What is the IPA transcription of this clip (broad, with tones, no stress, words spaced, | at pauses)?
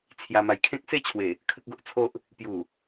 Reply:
t͡sʰja˧ma˧jkʰẽ˦k̚ se˥˧t͡ɕʰwe˨˩ | kʰə˦k̚ɡo˦ʔt͡sʰo˦ʔ | pju˨˩